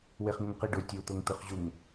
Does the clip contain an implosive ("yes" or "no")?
no